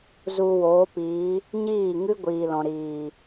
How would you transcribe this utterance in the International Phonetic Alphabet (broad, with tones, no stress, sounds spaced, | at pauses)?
z u˧ w oː˨˦ p iː˨˦ | ɲ iː˦˨ ŋ ɨ˦ ɡʷ iː˨ l ɔ̃˨ ɾ iː˨